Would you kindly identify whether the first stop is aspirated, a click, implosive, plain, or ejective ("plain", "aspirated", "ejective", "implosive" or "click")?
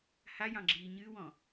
click